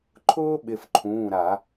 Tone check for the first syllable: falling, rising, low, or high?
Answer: high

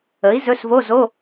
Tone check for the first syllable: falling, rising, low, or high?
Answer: rising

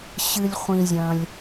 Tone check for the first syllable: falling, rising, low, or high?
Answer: low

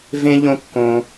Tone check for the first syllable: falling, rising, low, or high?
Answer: high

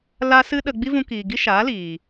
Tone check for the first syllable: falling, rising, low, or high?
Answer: high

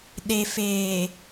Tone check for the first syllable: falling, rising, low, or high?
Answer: low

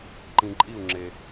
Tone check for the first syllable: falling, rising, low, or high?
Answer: low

